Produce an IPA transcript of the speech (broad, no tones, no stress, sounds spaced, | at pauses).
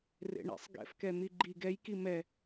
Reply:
r ḛ ɳ ḛ sˤ ɡ ɛ̰ f k ɛ n̪ i ɡ͡ǃ i ɡ ɛ j k i m ɛ